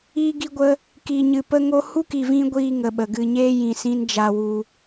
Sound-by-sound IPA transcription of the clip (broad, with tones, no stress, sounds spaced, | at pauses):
iː˧ ɡ i˧ ɡʷ ə˧ | k i˨ ɲ ɨ˨ p ə˧ ŋ o˧ h u˦ k i˨ v ĩ˧ ɡʷ iː˦ ŋ ə˨ ɓ ə˨ ɡ ɨ˨ ɲ eː˦ j ĩ˨ s ĩ˧ n d͡ʒ a˧ w u˧